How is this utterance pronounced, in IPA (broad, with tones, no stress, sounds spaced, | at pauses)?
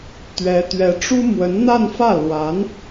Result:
t̪ ɥ ɛ˧˥ t̪ ɥ ɛ˧˥ ʈ͡ʂ u˥ m w ə˧˥ n n̪ a˥˧ n f ä˥˩ l w a˧˥ n